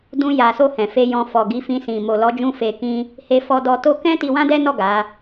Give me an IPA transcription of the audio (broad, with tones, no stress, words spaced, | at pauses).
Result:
dũ˧ ja˨so˧ hɛ̃˨fe˧jɔ̃˧ fɔ˨ɡi˨˦fĩ˧ sĩ˨ mo˨lɔ˨˦d͡ʒũ˧ fe˨ kĩ˧ | he˧fɔ˧ dɔ˧to˦ kɛ̃˦ ti˧wã˦dɛ˦nɔ˦˨ ɡa˨˦